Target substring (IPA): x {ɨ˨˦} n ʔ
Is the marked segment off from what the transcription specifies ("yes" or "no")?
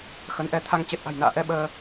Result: yes